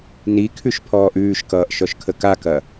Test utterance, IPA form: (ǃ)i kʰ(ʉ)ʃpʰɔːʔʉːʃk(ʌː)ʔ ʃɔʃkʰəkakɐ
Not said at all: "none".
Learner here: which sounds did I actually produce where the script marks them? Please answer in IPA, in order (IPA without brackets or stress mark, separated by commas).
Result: n, ʉ, ʌː